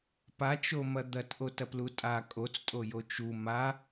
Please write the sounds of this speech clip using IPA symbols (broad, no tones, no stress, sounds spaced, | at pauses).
p a t͡ʃ o m ɐ d̪ ɐ t ʔ o t ɐ p l u tʼ a kʼ o t͡s tʼ o j o t͡ʃ u m a